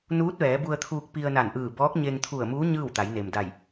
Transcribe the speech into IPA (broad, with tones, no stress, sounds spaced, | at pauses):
n uː˧˥ t̚ ʋ ɛː˩˧ b u˧ ə̯ t̪ʰ uː˧ k̚ p i˧ ə̯ n a˧˩ n ʔ ɯː˧˩ b ɔː˧˥ k̚ ɲ e˧ ŋ t̪ʰ u˧˩ ə̯ m uː˧˥ ɲ ɯː˥˨ w t̪ a˩˧ j n e˩ m d a˧˩ j